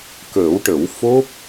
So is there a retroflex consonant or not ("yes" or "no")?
yes